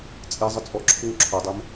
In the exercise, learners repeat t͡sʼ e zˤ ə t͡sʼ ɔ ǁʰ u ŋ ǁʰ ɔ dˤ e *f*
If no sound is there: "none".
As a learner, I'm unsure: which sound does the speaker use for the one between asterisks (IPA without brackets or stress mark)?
m